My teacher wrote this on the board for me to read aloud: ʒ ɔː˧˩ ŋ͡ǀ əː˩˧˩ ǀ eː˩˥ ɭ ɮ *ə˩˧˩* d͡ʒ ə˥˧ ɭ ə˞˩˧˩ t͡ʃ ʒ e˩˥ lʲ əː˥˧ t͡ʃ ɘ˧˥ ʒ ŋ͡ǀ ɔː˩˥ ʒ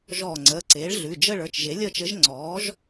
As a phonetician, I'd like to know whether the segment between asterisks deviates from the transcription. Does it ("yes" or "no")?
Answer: yes